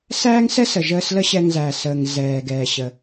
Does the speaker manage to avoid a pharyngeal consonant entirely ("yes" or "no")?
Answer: yes